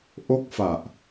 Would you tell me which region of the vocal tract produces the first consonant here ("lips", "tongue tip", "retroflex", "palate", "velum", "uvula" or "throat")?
throat